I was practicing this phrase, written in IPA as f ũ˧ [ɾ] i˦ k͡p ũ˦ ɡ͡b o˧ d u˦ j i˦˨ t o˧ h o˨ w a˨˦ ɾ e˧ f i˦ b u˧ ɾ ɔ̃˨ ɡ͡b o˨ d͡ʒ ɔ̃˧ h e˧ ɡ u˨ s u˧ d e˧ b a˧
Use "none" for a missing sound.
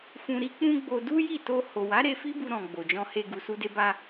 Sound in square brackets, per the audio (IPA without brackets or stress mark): ɾ